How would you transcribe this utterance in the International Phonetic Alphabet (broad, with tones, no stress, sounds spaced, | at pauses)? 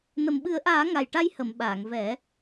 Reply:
n ə˨˩ m ɓ ɨ˨˩˦ ə̯ ʔ aː˨˩˦ ŋ a˨˩ j ʈ a˧ j h ə˨˩˨ m ɓ aː˨˩˨ ŋ v ɛ˨˩˦